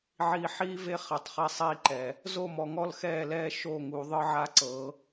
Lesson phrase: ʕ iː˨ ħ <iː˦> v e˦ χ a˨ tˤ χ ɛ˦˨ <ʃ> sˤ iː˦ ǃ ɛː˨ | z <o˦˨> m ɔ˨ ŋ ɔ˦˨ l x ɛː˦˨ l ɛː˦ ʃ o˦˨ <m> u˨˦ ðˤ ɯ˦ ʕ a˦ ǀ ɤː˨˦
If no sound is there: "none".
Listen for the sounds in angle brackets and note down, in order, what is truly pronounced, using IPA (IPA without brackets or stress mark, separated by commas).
iː˦, none, o˦˨, ŋ